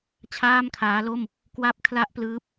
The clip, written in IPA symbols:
t͡ɕʰaː˥˩mkʰaː˦˥lo˥˩m | kwa˥˩p̚ kʰla˥˩ʔplɯː˦˥p̚

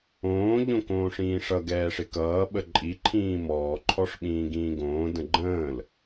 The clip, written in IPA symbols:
õː ʎõkõːʂĩːʂʌ ɡɛːʂɪkʌː ɓəǃʼi ǃʰĩːmɔː ǃʰɔʂɓĩːɡĩːɡõː də̃ɡ͡ǃə̃ːl

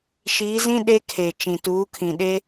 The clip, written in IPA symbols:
ʃiː˨˦zĩ˦ ɗe˦kʰe˨ t͡ʃĩ˨tuː˨˦kʰĩ˨ɗe˦

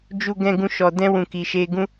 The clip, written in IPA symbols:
d͡ʒu˧ɡɛ̃˧ɡũ˧ ʃɔ˨dɛ̃˧ wũ˨ki˨ʃe˧ ɡũ˦

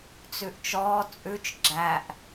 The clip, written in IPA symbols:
t͡sʉʔt͡ʃɔː t͡sʼʉt͡ʃ ɡ͡ǁæʔ

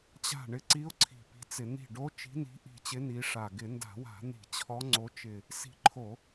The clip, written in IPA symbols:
t͡ɕa̤˧˩ ɳɪ˧˩ǀi˧˥ʊ̯ ǀʰi̤˧˩pi̤˧˥t͡sɪ˧˩˧ n̪i̤˧˩ɖo˧˥ t͡ʃi̤˧˥ni̤˧˥ʔi̤˧˩t͡ɕɪ˧˥ ni˧˥ʂa˧˩ ɡɪ˧˩˧nda̤˧˩˧wa̤˧˩˧n̪i̤˧˩˧ t͡ɕʰɔ˧˥ ŋ͡ǀo˧˥t͡ʃɪ˧˩ | si̤˧˩ǃʰo˧˩˧

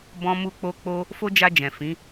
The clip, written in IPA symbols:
bɔ̃˦mu˦k͡po˦k͡po˦ | fo˦d͡ʒa˧d͡ʒɛ̃˨ fĩ˨˦

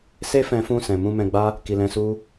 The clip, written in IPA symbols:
se˦fɛ̃˧fũ˧ sɛ̃˨ mũ˧mɛ̃˧ɡ͡ba˦ | ki˨lɛ̃˧su˦

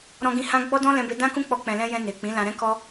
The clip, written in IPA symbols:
ɾɔ̃˧ɡĩ˧ hã˦ ɡ͡bɔ˦dɔ̃˦lɛ̃˧be˧ dã˦kũ˦k͡pɔ˧ k͡pɛ̃˨lɛ̃˧ jɛ̃˧ ne˨ k͡pĩ˨˦lã˧ɾɛ̃˦kɔ˦

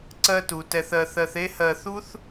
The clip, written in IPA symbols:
ǀɜ˦tu˩ tɛ˨θɜ˨θɜ˨θe˥ hɜ˨θu˥θ

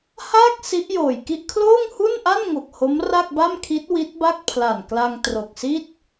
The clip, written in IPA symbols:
haː˥˩k̚ si˦˥ʔjoː˨˩jki˥˩ʔ kʰloː˥˩ŋhu˥˩nʔa˥˩nŋo˨˩k̚ ho˦˥mra˥˩k̚ba˥˩mkʰi˦˥t̚ wi˦˥t̚ba˥˩k̚pʰla˨˩nkla˧ŋ tro˨˩k̚si˥˩t̚

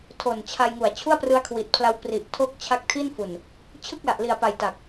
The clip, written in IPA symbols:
tʰo˨˩nt͡ɕʰa˧j ŋu˨˩a̯t͡ɕʰu˥˩a̯prɯ˦˥a̯ kʰwi˨˩t̚pʰla˦˥w pri˨˩ʔ tʰo˦˥k̚ t͡ɕʰa˦˥k̚tʰi˥˩nfu˨˩n | t͡ɕʰɯ˥˩k̚la˨˩ʔli˨˩a̯pa˨˩j ta˨˩k̚

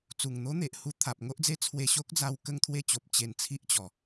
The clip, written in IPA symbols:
t͡su˨˩ŋn̪o˦n̪e˨ʔhu˧ t̪ʰa˨p̚ŋo˦ʔd͡ze˦ t͡sʰwe˧ɕo˦k̚d͡za˧w kə˥˧ŋt̪ʰwe˥˧t͡ɕo˨p̚ t͡ɕe˧nt͡sʰi˦ʔt͡ɕɔ˨˩

